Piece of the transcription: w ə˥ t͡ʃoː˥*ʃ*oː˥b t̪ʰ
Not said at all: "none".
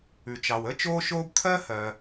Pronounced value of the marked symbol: ʃ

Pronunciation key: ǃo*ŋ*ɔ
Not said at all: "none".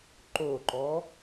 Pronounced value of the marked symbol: ǃ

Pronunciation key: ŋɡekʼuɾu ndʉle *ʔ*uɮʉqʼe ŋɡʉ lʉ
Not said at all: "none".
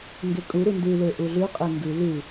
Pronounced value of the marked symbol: ʔ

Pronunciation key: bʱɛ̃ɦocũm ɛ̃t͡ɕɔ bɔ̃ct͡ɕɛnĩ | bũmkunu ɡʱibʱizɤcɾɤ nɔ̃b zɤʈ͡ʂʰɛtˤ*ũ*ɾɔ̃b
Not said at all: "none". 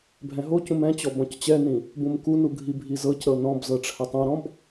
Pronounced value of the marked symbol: ũ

